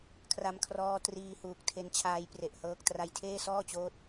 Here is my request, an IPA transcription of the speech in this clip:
kʰ r a˧ m kʰ r ɔː˦˥ t r iː˧ h uː˨˩ k̚ tʰ e˦˥ n t͡ɕʰ aː˦˥ j p r e˨˩ ʔ h ɤː˦˥ k̚ t r a˧ j tʰ eː˥˩ s ɔː˥˩ t͡ɕ oː˦˥ t̚

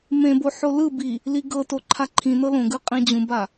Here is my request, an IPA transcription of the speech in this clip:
m ẽ b o ħ o l ɯ b i | l i ɡ ɤ t o ǃʰ a ǃʰ ĩ n ɤ l õ ɡ ɯ qʼ ĩ d͡ʑ ũ b a

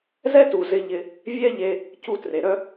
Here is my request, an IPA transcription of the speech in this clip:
z ɛ˦ t u˨ z ɪ˧ ʎ ɪ˧ | vʲ ɛ˦ ʎ e˧ | c u˧ t r e˨ ɾ œ˦

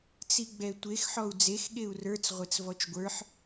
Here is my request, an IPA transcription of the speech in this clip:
t͡s i ɡ͡b ɛ tʷ e x ħ ɔ u̯ d͡z e x ɠ e u̯ r ə˞ t͡s ʁʷ e t͡s v ɔ t͡ʃ ɡʷ ə˞ ħ

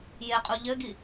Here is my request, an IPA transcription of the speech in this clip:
j e qʼ u ʎ ɘ ɡ i

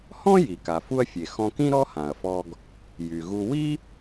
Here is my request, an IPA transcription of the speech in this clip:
h ɔ̃˥ j i˩ k a˩ f u˧ ɐ̯ fʲ e˩ x ɔ̃˧ k ĩ˥ ɾ ɔ˥ h ã˩ ɐ̯ f ɔ˧ ɡ | j y˩ ɣ u˧ w i˥

